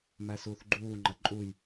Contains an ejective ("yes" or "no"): yes